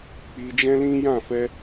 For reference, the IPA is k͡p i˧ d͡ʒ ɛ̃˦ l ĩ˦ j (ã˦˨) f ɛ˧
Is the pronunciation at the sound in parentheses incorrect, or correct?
correct